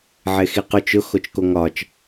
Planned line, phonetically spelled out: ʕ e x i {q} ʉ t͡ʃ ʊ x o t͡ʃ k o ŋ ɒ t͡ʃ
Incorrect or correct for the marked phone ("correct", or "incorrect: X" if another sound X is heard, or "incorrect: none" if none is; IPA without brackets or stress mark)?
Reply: correct